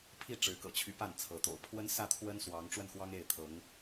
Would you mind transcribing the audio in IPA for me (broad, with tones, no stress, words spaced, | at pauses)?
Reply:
pʰi˥˩ ʈ͡ʂɻ̩˧˥kɤ̰˨˩t͡ɕʰy˧˥ pa˥˩nt͡sʰɤ˧˥t̪o̰˨˩ʊ̯ pʰwə˥nsä˥˩t̪ʰwə˥n swɑ˧˥ŋ ʈ͡ʂwə˥˩nxwɑ˥ŋ e˥˩ɪ̯t̪ʰɤ˧˥ŋ